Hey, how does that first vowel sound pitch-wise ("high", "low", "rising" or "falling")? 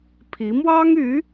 rising